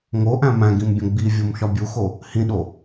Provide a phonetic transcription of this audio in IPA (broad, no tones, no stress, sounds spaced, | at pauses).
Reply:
ŋ o ʔ æ̃ m æ̃ ɡ ĩ m bʲ õ ɡ͡b i vʲ o m ʃ ɒ bʲ u x o | h ĩ ɗ o